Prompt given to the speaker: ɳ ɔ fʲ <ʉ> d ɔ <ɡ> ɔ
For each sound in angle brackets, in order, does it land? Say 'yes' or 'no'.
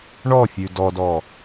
yes, no

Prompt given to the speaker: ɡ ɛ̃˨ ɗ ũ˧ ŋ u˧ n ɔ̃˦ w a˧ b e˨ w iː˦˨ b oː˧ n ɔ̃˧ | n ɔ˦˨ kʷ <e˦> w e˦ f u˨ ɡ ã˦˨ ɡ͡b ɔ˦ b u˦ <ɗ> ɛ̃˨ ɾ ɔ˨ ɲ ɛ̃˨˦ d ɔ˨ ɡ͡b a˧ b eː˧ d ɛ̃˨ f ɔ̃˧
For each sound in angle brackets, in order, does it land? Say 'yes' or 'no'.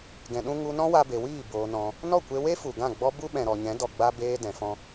no, no

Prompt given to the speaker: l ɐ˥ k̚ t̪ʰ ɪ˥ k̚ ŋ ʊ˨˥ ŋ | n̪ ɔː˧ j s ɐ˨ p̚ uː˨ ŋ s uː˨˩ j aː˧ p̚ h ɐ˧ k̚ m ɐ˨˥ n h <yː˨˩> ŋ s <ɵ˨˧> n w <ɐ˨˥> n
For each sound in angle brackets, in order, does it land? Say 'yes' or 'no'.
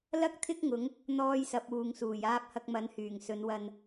yes, yes, no

